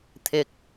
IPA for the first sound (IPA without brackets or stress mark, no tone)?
t̪ʰ